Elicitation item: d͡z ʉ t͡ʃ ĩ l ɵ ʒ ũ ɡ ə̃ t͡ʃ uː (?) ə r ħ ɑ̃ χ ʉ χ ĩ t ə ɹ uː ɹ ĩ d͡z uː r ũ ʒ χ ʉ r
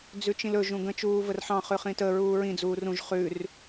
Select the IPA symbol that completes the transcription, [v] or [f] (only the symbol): v